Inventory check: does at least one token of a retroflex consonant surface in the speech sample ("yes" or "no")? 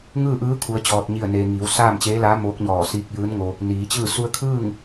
no